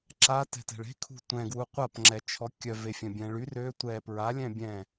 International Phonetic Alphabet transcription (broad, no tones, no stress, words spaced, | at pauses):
ǁatɛ̤tɛ̤ɭ e̤kʰṳ tʷɛ̃ɡwu qʷapŋ͡ǁɛt͡ʃʰɔ kʲœvefʲœ̃bʲɛ̃ ɭy rø tʷɛ pɹalʲɛ̃ bʲɛ̃